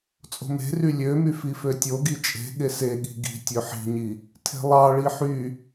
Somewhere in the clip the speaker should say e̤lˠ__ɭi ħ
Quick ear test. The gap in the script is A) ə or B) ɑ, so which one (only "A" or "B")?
B